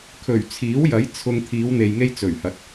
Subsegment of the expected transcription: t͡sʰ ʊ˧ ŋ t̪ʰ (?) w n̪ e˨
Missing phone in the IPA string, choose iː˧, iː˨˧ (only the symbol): iː˨˧